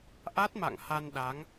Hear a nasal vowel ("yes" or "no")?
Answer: no